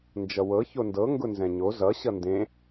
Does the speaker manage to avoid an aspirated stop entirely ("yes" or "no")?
yes